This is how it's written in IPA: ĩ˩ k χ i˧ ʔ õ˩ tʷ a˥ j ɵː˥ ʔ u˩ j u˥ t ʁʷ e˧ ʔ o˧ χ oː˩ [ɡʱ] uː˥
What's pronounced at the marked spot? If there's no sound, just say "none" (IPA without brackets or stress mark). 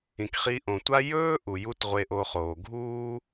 ɡʱ